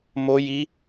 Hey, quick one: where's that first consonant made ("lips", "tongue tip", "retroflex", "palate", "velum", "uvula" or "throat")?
lips